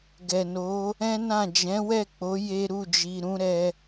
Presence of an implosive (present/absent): absent